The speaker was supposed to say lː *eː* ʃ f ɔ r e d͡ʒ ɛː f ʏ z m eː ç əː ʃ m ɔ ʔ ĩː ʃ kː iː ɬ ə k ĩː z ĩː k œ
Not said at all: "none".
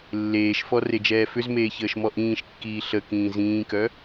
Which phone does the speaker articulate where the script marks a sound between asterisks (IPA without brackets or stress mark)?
eː